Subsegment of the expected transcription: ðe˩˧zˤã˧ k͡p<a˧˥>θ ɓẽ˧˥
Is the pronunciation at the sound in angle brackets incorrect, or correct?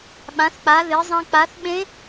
incorrect